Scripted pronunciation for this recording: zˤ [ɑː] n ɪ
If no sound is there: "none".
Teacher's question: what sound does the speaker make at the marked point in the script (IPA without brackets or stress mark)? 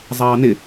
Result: ɑː